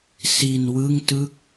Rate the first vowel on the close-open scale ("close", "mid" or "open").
close